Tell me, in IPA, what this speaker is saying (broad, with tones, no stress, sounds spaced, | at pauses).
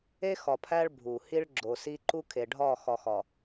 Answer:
e˦ x ɒ˨ pʰ æ˦ ɭ bʱ u˨ h i˦ ɭ ɡ͡ǁ o˨ s i˦ ǃ u˦ kʰ e˨ ɖʱ ɒ˦˨ x ɒ˨ x ɒ˨